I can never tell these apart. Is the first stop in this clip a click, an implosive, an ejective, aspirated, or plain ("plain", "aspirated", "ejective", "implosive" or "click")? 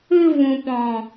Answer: plain